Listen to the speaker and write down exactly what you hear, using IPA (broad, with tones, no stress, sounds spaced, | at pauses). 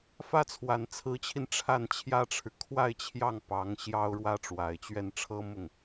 f ä˥ t͡sʰ w a˨˩ n t͡sʰ ɹ̩˧˥ t͡ɕʰ i˧ n ʈ͡ʂʰ a˥˩ n t͡ɕʰ j ä˥ ʈ͡ʂʰ ɻ̩˨ kʰ w a˥˧ ɪ̯ t͡ɕʰ j ɑ˥˩ ŋ p ɑ˧˥ ŋ ɕ j ɑ˥ ʊ̯ ɻ w ä˥ ʈ͡ʂ w a˨˩ ɪ̯ t͡ɕ ɥ ɛ˥˩ n ʈ͡ʂʰ ɤ˥ m ʊ˥˩ ŋ